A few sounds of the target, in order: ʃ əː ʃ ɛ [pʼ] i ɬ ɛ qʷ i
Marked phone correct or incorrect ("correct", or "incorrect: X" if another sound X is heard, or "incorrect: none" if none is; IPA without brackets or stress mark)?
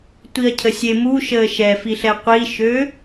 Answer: incorrect: f